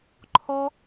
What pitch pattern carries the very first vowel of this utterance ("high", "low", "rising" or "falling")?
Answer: high